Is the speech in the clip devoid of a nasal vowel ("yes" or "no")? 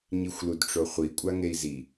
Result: yes